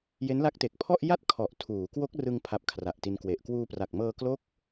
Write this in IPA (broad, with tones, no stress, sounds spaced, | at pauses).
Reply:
j e˦˥ n l a˦˥ k̚ t e˨˩ k̚ pʰ ɔ˥˩ ʔ j a˥˩ t̚ kʰ ɔ˨˩ ʔ tʰ uː˩˦ k w o˦˥ k̚ r ɯ˧ ŋ pʰ a˨˩ p̚ kʰ r a˨˩ ʔ t i˧ n k w e˨˩ ʔ k w uː˧ p r a˨˩ k̚ m ɤː˧ k l o˦˥ k̚